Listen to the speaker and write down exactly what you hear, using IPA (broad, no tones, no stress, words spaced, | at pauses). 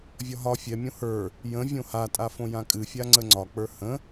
vʲɒɦɒ fʲɛmʲõ hə˞ | jə̃ vʲõhatʼafõ jãkʼɨfʲa ŋ͡ǀəŋ͡ǀɒk͡pə˞ hə̃